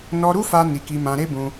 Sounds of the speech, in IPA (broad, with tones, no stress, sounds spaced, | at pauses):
n ɔ˧ ɾ u˦ f a˦ n i˧ k i˧ m ã˧ ɾ e˦ b ũ˧